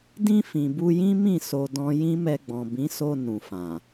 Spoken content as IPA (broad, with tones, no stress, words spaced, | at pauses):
dĩ˧ fĩ˨bu˧jĩ˦mĩ˦˨ so˧dɔ̃˦ jĩ˦mɛ˧ɡ͡bɔ̃˨ bĩ˨˦so˧ nũ˨fã˨